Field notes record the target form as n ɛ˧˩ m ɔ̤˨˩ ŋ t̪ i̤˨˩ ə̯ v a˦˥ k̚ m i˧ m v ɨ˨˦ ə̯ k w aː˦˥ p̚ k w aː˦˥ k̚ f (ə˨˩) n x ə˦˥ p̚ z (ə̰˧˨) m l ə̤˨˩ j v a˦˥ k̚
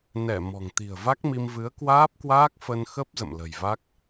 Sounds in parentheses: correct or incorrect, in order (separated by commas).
incorrect, correct